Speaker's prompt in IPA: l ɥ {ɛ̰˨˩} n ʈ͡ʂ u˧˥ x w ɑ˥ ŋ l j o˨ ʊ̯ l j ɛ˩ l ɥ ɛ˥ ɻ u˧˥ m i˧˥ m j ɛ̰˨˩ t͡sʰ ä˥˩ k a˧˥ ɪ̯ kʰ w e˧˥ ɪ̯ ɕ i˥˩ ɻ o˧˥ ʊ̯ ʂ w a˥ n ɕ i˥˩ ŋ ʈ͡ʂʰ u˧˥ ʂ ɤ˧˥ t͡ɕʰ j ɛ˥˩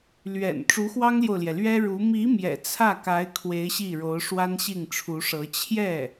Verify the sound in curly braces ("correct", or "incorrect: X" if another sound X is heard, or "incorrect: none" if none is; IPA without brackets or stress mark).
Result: correct